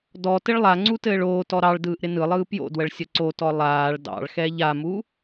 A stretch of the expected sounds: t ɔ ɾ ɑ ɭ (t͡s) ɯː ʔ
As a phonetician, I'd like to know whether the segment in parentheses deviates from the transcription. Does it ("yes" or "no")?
yes